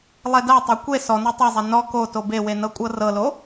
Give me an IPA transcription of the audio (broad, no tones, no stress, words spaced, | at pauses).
lˠɛdatˤɛ kʷe sɔnɔ tˤezˤɛ nɔ ko tobewe nɤkʷʼɤrɤlo